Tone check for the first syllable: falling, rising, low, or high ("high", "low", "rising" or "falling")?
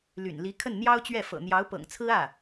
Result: low